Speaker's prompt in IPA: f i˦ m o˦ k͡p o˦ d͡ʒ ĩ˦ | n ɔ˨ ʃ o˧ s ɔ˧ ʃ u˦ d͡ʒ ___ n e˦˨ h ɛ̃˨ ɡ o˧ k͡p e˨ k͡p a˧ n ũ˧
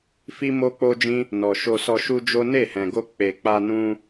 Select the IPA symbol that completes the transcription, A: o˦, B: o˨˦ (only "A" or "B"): A